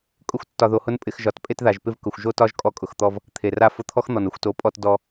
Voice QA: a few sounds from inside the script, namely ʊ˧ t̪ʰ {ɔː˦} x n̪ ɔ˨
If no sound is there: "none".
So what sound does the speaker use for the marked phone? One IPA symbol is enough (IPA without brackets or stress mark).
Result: ɔ˦